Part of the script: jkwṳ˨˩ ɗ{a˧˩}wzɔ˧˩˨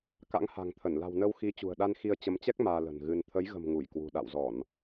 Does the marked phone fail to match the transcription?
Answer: yes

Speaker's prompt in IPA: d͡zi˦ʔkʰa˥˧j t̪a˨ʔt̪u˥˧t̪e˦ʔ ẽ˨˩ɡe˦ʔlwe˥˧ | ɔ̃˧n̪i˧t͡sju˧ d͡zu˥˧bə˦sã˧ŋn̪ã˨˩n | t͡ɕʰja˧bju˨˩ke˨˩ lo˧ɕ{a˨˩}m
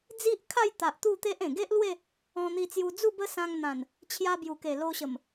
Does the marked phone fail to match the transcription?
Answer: yes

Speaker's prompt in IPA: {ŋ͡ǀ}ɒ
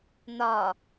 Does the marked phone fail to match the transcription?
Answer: yes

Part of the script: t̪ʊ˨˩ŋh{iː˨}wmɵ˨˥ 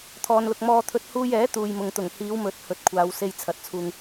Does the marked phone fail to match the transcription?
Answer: yes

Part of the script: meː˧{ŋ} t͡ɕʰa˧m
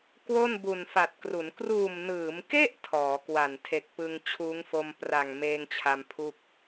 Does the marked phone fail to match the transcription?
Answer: no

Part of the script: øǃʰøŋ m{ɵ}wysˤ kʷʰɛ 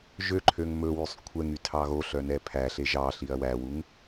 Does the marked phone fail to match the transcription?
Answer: no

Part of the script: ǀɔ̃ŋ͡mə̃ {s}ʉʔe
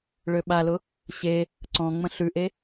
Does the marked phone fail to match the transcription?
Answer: yes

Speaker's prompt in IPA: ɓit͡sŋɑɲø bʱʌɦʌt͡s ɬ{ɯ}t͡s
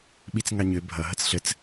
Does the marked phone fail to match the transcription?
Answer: yes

